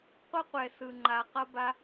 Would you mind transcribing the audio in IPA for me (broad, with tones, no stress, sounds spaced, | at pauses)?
qʷ ʌ˦ qʷ ɛ˨ s ɯ˨ ŋ͡ǃ a˨ q ʌ˧ b a˧